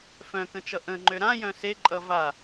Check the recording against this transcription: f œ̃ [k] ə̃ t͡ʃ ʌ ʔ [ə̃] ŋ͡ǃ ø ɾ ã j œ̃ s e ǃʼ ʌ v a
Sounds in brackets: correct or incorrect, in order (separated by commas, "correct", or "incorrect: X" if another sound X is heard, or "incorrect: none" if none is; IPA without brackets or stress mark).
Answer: correct, correct